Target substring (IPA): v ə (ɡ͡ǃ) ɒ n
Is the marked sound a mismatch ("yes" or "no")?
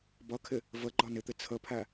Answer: no